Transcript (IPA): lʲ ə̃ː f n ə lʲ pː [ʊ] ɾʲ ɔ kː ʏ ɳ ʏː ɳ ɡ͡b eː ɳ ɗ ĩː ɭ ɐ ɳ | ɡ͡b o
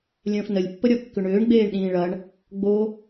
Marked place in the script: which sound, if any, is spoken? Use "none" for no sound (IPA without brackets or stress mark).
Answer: ə